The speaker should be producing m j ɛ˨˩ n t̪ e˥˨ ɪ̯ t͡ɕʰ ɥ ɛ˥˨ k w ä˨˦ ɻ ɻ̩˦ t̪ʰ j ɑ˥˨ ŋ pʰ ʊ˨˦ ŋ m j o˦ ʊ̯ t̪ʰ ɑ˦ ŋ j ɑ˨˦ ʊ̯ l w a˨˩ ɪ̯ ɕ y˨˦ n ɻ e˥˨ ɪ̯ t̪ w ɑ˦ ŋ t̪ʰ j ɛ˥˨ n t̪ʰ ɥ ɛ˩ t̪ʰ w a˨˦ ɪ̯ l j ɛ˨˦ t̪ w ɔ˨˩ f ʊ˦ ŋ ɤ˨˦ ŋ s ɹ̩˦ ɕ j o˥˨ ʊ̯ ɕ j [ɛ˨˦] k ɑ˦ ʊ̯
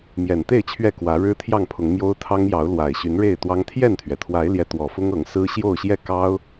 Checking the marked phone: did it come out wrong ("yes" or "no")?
yes